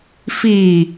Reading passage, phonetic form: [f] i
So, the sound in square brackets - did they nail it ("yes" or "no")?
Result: yes